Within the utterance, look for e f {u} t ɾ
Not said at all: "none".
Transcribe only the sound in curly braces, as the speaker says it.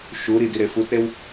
u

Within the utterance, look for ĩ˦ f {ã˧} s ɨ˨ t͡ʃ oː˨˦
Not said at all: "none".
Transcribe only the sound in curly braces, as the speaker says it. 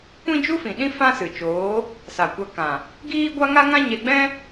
ã˦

